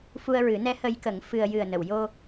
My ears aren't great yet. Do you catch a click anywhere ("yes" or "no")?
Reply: no